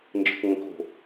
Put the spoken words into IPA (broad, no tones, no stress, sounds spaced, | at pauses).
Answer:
n d͡ʒ ɯ k ŋ ə̃ k o̤